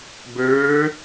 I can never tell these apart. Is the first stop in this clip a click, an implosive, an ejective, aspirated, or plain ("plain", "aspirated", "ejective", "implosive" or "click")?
plain